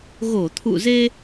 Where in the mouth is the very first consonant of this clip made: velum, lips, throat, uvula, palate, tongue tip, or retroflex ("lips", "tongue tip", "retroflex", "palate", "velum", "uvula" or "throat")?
velum